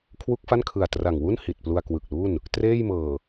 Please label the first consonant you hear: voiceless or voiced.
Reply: voiceless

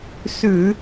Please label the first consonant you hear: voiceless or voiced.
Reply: voiceless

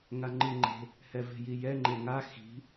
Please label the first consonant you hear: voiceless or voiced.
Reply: voiced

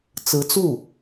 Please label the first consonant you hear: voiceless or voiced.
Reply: voiceless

